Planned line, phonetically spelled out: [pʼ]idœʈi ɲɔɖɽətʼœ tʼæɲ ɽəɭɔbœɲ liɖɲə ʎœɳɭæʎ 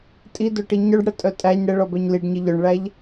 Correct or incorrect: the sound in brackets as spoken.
incorrect: tʼ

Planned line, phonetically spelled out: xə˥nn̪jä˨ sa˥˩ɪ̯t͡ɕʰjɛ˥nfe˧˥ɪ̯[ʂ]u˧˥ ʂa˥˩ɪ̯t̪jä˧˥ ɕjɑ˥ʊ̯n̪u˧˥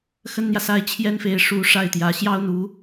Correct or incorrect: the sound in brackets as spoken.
correct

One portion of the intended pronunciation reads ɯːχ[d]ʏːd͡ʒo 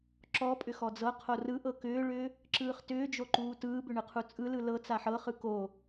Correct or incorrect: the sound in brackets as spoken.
incorrect: t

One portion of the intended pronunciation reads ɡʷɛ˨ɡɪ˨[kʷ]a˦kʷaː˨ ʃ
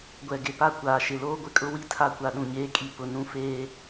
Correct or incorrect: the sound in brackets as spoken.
incorrect: p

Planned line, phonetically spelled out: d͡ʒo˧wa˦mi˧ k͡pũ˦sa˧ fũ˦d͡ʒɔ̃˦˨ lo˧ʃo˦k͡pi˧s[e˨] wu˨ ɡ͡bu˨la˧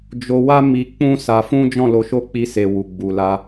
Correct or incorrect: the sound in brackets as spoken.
correct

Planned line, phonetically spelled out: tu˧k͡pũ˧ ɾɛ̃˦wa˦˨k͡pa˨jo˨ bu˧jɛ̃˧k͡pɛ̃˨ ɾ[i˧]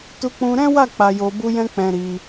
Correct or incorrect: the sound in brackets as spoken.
correct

